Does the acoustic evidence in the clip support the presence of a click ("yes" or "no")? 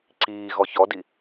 yes